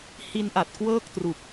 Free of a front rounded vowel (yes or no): yes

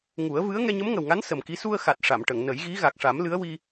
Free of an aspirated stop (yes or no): yes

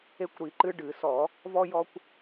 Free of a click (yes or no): no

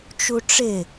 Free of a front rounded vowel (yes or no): yes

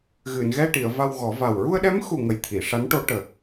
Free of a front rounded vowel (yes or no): yes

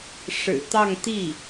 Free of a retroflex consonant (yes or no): no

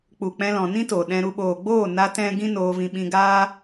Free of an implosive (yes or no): no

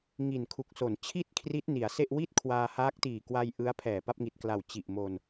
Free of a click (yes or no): yes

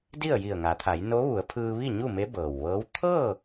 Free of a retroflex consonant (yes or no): yes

